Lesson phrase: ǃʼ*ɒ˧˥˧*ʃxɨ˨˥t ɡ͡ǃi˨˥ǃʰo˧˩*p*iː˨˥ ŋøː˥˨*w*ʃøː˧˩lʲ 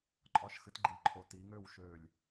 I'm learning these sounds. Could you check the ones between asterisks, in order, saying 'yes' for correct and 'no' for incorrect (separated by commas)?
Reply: yes, no, yes